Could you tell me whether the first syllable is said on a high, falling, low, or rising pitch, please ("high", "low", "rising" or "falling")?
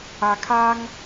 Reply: low